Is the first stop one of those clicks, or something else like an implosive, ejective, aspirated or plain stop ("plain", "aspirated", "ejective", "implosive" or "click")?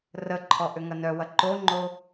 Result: click